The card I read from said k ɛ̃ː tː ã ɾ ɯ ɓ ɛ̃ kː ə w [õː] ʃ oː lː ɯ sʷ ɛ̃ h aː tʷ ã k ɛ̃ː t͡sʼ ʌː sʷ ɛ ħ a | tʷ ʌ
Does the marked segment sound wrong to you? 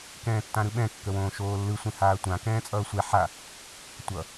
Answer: no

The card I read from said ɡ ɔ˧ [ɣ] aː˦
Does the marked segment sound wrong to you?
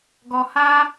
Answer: yes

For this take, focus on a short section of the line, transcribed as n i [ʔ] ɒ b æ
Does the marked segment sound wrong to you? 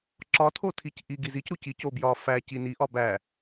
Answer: no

